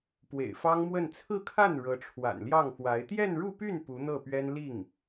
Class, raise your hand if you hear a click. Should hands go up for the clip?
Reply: no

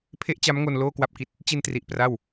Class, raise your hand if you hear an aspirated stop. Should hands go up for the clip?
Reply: yes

